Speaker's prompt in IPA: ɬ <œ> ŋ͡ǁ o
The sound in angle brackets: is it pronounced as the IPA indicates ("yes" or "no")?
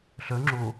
yes